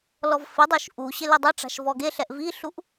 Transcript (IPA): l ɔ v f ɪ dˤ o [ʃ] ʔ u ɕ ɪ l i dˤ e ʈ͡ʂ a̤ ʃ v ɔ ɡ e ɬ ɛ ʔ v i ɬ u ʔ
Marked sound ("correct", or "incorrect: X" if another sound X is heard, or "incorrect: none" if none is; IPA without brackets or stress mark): correct